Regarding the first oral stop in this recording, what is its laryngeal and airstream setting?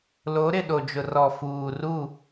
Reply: implosive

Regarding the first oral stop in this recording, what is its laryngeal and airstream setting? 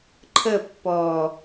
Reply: click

